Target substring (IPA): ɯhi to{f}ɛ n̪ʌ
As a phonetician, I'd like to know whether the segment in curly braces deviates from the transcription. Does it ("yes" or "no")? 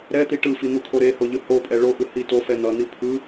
no